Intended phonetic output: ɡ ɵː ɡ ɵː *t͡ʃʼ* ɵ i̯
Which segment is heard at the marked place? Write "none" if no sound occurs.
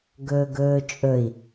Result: t͡ʃʼ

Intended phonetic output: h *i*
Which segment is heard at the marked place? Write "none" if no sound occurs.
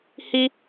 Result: i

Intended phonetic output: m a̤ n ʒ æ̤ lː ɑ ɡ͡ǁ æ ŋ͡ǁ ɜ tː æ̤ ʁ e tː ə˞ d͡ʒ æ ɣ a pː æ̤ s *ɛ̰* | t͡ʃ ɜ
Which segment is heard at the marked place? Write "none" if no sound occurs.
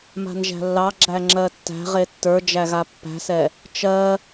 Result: ɛ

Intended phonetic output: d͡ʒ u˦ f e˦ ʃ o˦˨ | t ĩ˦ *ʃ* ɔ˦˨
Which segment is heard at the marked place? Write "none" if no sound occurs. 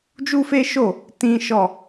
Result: ʃ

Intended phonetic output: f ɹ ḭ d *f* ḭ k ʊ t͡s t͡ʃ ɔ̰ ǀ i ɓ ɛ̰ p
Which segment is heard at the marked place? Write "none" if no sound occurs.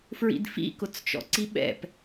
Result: f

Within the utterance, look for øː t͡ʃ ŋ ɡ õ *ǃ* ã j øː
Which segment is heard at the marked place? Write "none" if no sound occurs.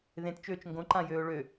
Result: ǃ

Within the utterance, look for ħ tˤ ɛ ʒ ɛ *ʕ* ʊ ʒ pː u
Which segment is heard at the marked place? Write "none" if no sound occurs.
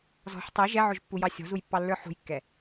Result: ʕ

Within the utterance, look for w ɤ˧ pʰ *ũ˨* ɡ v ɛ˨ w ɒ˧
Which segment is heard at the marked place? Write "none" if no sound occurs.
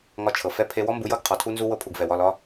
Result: u˨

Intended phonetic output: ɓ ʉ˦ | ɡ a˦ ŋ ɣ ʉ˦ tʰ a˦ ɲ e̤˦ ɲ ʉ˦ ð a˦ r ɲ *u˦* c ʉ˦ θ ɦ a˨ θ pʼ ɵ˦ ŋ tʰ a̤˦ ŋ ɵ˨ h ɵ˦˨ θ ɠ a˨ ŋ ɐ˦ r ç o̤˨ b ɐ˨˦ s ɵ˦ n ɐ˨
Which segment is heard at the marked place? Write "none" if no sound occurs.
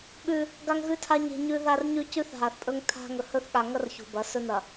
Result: ʉ˦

